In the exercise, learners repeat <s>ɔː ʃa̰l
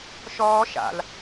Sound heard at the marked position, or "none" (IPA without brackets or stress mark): ʃ